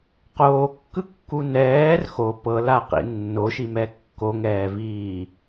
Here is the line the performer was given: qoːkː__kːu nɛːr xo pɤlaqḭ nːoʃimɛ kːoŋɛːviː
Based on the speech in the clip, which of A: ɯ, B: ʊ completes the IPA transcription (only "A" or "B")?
A